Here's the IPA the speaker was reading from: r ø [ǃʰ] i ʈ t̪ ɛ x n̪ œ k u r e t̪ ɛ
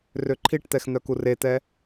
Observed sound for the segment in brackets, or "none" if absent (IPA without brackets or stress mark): ǃʰ